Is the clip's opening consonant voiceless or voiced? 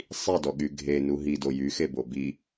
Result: voiceless